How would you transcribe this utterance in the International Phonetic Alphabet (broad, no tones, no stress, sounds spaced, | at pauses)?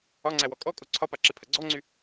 ɒ ŋ͡ǀ æ w ɔ kʼ ɔ kʼ o ǀʰ ɒ p a ǁ e pʰ ɐ ɡ͡ǀ ɔ ŋ͡ǀ y